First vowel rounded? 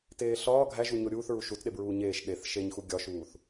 no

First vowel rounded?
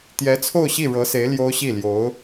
no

